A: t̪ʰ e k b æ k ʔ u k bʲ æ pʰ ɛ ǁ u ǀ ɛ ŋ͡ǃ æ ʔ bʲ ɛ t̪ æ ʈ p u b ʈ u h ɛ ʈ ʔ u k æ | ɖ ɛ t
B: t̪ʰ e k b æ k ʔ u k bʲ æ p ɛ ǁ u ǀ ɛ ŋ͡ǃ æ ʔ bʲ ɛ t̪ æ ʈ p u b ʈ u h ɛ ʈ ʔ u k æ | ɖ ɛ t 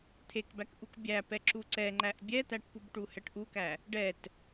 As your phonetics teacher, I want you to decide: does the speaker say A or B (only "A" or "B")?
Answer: B